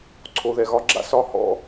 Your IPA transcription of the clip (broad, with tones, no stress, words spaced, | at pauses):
ǀʰo˨ðɛ˨ɣɒ˧ɡ͡ǁa̰˦ sɒ˦ hɔ̰˦